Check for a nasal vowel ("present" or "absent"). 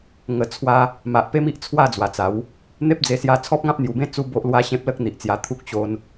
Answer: present